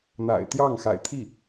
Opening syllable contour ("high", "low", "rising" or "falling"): low